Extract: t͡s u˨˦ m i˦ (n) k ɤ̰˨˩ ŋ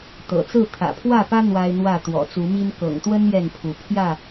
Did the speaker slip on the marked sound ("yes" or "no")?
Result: no